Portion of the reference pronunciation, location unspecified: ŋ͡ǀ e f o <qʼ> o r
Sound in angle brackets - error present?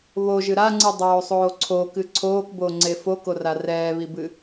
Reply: yes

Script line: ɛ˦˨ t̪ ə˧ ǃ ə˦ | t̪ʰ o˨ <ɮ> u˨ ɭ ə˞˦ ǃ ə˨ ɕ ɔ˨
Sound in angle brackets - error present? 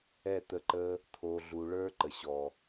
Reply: no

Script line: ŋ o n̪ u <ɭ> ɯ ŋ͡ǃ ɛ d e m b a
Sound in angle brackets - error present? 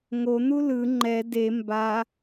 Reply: yes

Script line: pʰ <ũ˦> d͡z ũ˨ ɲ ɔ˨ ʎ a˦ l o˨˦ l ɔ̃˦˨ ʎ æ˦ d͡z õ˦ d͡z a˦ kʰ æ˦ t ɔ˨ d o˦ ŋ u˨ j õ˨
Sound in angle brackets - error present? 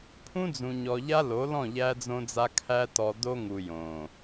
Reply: no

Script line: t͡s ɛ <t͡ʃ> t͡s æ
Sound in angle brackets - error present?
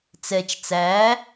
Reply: no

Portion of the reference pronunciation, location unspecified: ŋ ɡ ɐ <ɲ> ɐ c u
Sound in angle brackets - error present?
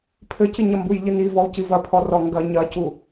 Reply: no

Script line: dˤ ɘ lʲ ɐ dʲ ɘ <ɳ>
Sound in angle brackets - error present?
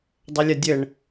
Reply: no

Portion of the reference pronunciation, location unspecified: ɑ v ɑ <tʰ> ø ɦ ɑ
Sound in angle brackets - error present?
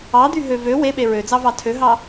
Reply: no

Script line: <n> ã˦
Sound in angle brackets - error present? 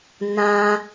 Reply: no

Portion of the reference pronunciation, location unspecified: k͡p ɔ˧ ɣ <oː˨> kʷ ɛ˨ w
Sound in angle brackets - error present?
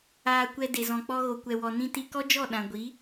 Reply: yes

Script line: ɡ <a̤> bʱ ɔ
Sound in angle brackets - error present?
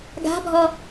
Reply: no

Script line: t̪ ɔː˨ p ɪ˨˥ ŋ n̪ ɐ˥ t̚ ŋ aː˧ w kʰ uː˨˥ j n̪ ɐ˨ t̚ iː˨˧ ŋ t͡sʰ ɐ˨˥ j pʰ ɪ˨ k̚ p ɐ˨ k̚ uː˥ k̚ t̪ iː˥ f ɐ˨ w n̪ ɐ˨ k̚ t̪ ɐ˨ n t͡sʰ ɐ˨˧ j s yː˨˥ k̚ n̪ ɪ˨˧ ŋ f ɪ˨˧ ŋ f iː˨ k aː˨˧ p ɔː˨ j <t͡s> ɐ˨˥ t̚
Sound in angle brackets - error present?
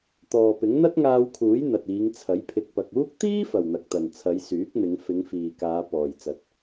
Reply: no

